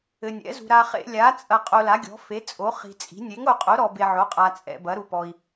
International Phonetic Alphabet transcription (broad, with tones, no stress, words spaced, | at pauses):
ɘ˧ nʲɛ̰˨˥zṳ˧ ɾa˧ χḛ˧lʲa˨˥ t͡sʼɐ˧ qʼo˧la˨˥ɡʲɔ̤˨˥ fe˨˥t͡sʼo˨˥ χi̤˧t͡sʼi̤˨˥ nʲe˨˥ŋo˧qʼo˨˥ ɾɔ˧be˧ʕo˨˥qʼa˧ t͡sʼɛ̰˧bɐ˨˥ɾu˧pɔ˧i̯